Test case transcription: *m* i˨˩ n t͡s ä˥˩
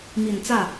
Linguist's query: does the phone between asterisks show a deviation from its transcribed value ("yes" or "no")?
no